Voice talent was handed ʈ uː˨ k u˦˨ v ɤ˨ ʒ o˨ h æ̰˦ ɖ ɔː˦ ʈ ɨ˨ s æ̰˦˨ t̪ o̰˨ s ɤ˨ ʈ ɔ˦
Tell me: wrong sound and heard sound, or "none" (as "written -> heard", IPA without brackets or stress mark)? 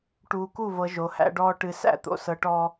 none